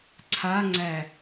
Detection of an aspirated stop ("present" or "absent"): present